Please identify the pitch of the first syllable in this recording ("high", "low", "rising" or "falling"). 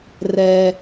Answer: high